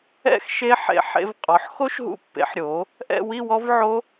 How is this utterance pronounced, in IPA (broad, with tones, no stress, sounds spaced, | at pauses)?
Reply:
ɛ̰˥˧ x ʃ e˦˥ ħ ḛ˧ ħ ḛ˧ v qʼ ɔ˩˥ ħ x o˦˥ ʃ ɦ ṵ˧ pː ḛ˩˥ ħ ɾʲ o˩˥ | ʔ ɛ̰˥˧ w i˥˧ w ɔ˦˥ v ʕ o˦˥